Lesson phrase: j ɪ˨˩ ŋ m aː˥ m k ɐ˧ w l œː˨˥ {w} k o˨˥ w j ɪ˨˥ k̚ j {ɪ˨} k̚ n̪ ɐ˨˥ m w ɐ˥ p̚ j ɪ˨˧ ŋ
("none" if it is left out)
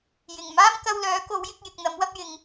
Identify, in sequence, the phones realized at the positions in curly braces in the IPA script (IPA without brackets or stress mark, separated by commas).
none, ɪ˨